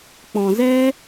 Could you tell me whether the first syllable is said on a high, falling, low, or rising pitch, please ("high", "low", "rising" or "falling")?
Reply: low